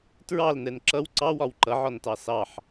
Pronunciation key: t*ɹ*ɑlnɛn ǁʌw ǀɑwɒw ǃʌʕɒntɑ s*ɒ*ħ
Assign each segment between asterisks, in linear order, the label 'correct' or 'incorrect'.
correct, incorrect: ɑ

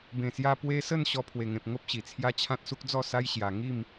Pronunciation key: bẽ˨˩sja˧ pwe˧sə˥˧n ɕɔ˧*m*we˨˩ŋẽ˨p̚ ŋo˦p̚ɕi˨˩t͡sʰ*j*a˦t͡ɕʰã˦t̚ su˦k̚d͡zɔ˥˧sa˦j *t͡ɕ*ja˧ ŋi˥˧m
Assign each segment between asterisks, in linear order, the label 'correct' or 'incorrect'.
incorrect: pʰ, correct, incorrect: ɕ

